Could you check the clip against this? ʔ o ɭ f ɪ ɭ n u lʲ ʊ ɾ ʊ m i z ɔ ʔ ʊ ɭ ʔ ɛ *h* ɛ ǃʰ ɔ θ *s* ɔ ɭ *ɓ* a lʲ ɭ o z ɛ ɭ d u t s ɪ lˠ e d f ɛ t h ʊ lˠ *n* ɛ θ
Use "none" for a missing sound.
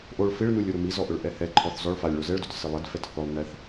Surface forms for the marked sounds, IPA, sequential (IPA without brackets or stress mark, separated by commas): h, z, f, n